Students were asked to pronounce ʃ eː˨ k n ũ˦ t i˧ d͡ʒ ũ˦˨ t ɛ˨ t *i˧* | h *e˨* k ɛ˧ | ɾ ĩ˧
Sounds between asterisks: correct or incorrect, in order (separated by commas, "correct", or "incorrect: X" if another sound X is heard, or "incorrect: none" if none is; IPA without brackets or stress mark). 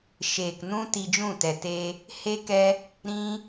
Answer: incorrect: e˧, incorrect: e˦